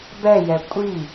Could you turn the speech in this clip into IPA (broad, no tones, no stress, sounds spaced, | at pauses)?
b ɛ j ɛ kʷʼ i